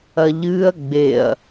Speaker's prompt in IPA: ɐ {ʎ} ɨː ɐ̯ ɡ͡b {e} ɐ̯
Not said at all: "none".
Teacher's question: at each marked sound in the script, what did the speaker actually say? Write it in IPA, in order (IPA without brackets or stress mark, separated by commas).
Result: ʎ, e